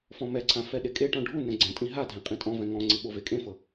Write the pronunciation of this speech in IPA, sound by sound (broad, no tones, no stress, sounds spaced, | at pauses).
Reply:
f ɔ̃ m ɛ ǀʰ ã f ɛ ɗ e kʼ e ʈ ɔ̃ ɖʱ u n ɛ̃ ɡ͡ǀ ɛ̃ tʼ ĩ ɦ a dʱ ɛ̃ qʼ ĩ tʼ ɔ̃ v ɛ̃ ŋ ɔ̃ ŋ͡ǀ i ɓ o v e kʼ ẽ f ɤ